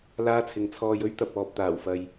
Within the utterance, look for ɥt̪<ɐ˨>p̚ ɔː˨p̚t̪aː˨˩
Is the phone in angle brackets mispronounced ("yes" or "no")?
no